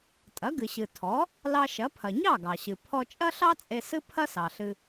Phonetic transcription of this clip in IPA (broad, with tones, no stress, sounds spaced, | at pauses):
tʼ ɐ˩˥ ɡ ɨ˩ ɕ ɨ˩ tʰ ɔ˩˥ | l ɑ˧ ʃ ɐ˩˥ pʰ ɐ˩ ɲ ɑ˥˩ ɡ ɑ˩ ɕ ɨ˩ pʰ ɔ˧ t͡ʃʼ ɐ˥ ɬ ɑ˥ t͡sʼ e˧ s ɨ˥ pʰ ɐ˥ s ɑ˩ ɬ ɨ˧